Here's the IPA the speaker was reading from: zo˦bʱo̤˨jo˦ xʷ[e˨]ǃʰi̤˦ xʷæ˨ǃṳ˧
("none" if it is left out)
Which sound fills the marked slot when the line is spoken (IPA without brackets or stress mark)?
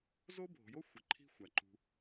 e˨